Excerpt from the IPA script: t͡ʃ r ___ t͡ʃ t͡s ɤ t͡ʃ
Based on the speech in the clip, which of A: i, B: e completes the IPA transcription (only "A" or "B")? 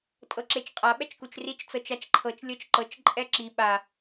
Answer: A